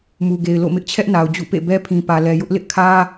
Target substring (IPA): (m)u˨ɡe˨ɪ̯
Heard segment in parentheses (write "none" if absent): m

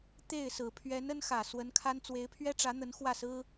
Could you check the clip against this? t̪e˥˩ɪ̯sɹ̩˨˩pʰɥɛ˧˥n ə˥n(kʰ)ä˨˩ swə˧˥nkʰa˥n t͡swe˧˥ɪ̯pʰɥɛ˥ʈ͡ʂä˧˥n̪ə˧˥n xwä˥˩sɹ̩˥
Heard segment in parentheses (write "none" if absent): x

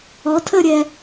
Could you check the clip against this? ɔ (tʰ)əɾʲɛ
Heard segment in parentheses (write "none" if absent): tʰ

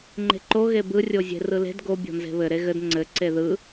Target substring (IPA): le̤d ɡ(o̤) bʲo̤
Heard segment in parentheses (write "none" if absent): o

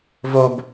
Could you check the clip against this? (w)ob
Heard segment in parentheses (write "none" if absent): v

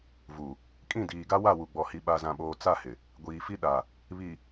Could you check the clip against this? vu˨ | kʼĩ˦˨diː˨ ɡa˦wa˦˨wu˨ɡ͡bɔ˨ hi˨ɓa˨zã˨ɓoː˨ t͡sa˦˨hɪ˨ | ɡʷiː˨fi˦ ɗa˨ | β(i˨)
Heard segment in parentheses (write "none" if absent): i˨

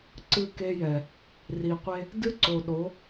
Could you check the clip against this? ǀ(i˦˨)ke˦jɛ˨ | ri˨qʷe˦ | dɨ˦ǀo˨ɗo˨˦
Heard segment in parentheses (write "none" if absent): ɨ˦˨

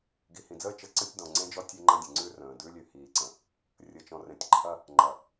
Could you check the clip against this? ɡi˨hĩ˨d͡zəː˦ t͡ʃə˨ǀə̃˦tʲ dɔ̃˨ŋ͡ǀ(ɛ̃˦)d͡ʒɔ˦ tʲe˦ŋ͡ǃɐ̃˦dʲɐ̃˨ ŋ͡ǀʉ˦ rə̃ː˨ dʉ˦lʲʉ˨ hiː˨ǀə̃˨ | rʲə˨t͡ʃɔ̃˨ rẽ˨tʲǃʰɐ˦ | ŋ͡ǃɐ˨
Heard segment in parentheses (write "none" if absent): ẽ˦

